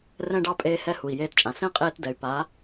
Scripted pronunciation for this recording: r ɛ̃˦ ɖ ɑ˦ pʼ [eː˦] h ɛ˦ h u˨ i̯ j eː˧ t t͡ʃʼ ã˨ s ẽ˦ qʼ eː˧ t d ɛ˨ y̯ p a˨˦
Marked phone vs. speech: correct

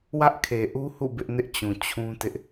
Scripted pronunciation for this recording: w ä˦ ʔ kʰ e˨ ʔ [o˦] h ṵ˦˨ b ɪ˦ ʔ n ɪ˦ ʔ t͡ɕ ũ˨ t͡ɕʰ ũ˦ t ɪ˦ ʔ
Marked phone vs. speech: incorrect: u˦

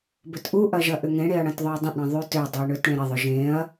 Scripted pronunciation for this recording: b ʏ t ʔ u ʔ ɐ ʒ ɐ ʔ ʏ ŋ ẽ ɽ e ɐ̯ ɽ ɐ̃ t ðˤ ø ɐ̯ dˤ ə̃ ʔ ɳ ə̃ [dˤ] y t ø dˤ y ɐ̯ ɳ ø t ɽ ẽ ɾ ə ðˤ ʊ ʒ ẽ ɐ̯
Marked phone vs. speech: incorrect: ðˤ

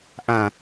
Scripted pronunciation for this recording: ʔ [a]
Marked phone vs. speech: incorrect: ã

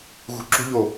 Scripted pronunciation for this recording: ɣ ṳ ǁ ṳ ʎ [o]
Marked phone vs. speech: correct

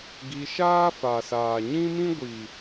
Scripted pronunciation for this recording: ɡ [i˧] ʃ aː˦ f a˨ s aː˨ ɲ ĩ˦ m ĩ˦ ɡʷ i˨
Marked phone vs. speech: correct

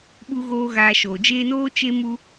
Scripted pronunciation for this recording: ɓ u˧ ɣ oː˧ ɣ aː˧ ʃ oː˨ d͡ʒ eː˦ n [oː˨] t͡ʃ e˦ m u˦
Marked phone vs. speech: incorrect: oː˦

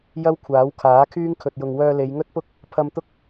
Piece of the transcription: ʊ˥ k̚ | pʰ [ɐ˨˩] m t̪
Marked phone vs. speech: incorrect: ɐ˧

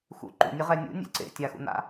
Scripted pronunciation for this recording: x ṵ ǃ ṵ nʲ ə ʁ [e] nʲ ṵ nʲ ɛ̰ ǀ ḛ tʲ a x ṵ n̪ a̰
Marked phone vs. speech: incorrect: ɛ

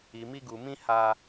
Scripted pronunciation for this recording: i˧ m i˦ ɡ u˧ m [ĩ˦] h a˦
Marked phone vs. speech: correct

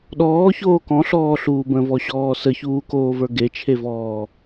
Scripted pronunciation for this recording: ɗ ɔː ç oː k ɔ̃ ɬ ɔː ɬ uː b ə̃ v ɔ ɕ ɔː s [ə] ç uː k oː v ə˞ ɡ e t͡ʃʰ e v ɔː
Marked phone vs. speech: correct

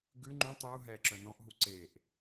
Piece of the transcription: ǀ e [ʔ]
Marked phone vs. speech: correct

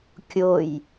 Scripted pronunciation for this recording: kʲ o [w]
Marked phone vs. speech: incorrect: j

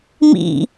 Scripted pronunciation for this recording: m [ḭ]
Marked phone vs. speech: correct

